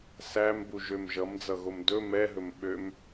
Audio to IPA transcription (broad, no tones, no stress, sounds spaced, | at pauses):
s æ m b u ʒ ø m ʒ ʌ m d͡z ʌ ɣ o m d ɵ m ɛ ɦ ɵ m ɓ ø m